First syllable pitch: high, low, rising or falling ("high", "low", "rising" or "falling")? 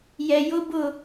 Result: low